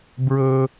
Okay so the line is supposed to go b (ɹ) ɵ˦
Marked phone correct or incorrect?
correct